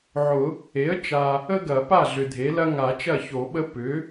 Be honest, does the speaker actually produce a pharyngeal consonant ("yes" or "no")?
yes